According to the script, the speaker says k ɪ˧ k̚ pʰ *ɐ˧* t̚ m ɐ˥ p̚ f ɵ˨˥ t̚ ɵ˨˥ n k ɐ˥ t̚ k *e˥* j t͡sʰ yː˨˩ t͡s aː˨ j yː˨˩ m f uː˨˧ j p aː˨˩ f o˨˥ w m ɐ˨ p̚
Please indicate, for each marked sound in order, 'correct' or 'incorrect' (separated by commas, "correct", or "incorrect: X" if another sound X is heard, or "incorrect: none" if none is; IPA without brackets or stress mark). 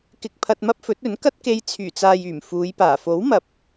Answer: correct, incorrect: e˧